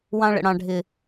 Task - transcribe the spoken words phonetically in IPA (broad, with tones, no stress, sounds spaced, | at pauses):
w ɑ̃˧ ɭ ə̰˨ ɽ ɑ̃˨ ɖʱ ɪ˨